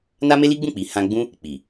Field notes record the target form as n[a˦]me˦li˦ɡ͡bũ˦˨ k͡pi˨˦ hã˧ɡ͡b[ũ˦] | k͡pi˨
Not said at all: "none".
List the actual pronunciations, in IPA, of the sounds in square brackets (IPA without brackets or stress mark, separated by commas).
a˦, ũ˦